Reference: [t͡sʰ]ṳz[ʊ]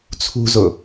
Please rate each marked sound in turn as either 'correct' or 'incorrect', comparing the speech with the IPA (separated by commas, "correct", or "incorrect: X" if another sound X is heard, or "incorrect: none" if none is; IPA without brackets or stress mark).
correct, correct